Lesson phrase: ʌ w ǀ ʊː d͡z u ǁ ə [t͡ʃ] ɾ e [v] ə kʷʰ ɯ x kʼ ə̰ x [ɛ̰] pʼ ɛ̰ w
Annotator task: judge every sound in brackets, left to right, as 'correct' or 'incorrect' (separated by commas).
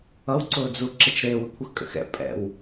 correct, incorrect, correct